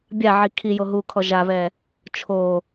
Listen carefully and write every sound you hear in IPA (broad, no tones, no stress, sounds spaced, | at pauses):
bʲ a ʕ i kʰ i j o ɦ u kʰ ɔ ʒ a β ɛ | t͡ʃʰ o